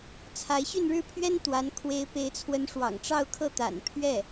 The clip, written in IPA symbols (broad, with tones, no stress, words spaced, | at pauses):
t͡sʰa˧˥ɪ̯ɕy˥˧nɻɻ̩˥˩ pʰɥɛ˥nt̪wa˧˥n kʰwe˧˥ɪ̯pe˧˥ɪ̯t͡sʰwə˧˥n ʂwɑ̰˨˩ŋʈ͡ʂɑ˥˧ʊ̯kʰɤ˥˩ t̪a̰˨˩npʰɥɛ˥˩